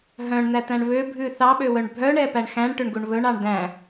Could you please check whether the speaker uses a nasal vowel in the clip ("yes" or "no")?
yes